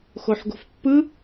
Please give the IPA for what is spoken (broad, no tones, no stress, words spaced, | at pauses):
xoħɡo̤fpːɯ